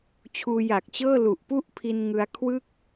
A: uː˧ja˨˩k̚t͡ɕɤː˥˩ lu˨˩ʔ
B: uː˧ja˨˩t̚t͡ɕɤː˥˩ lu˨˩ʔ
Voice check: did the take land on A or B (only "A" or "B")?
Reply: A